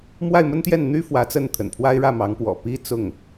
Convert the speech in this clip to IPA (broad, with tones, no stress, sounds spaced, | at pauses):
m w a˥˩ ɪ̯ m ə˥ n t̪ j ɛ˥˩ n n̪ y˥ f w ä˧˥ t͡s ə˥˩ n t̪ʰ ə̰˨˩ n pʰ w a˥ ɪ̯ ɻ ä˥˩ m ɑ˧˥ ŋ p w ɔ̰˨˩ p i˥ t͡s ʊ˥˩ ŋ